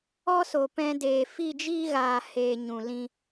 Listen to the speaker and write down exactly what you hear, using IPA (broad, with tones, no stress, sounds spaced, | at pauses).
ɔ˦ s o˨ p ɛ̃˧ d eː˨ f i˦˨ d͡ʒ iː˦ ɣ aː˨ h eː˨ ɲ ũ˨ l ĩ˦